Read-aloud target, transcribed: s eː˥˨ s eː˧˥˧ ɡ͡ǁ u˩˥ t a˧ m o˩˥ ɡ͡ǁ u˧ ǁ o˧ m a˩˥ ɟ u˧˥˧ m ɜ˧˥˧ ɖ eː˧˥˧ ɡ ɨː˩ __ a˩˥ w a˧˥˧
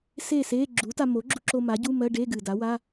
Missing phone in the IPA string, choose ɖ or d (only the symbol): d